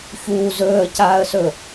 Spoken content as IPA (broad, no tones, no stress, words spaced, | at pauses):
çuː zɵːə̯caːə̯sɵ